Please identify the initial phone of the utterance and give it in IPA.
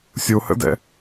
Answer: sʲ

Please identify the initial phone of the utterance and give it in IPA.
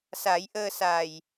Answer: s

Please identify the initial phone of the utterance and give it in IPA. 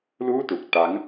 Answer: l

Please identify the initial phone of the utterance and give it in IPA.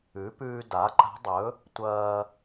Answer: ʉ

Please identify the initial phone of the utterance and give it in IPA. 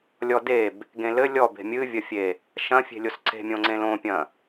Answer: lʲ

